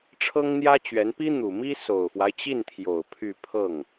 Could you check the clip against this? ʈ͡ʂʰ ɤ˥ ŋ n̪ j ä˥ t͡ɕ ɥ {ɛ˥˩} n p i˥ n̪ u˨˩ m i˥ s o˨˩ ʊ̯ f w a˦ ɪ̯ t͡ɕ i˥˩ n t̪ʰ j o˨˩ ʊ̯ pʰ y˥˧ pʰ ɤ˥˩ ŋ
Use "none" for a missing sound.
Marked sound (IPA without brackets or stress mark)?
ɛ˧˥